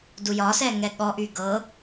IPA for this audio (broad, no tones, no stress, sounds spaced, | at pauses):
d u j ɒ s ɛ ŋ ɛ ɠ ɔ ʔ y ɡ ɤ